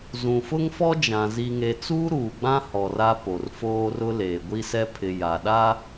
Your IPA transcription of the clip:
zũ˨fʊ˦ŋfɔ˦d͡ʒã˨ zi˨ŋe˨t͡suː˦ ɾuː˨ɡ͡bã˦ hɔ˨ra˦ po˨rfoː˦ rʊ˦leː˨ɡʷi˦sɛ˦ pʰɪ˨ ja˨ɗa˦

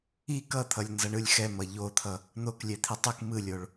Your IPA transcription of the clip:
ik ʌt̪ʰʌlʲnzʌɳɯlʲ xɛmʌ ʎot̪ʰʌ | n̪oklʲɛt̪ʰi tˤɯk mɯlʲoɭ

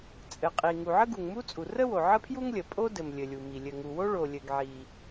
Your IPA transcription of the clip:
t͡sʼɘ˩qʼi˩ ŋu˩ʕə˥ɡu˩ŋ mu˥t͡sʼu˩ rə˥wo˩ ʕə˥pʰju˥ŋlʲə˩ pʼo˥dɘ˩m lʲɘ˩lʲu˩mi˩ lʲɘ˩ŋu˩wo˥ ɭo˩lʲɘ˩ɡʕi˩

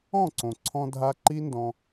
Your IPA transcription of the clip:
ɔ̃˦˨ǀõ˨ǀʰɔ̃˧dʱa˧ ǃi˦ndɔ̃˧

